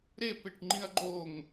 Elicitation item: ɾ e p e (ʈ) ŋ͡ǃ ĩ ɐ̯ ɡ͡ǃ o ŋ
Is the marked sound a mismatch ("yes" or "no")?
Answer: no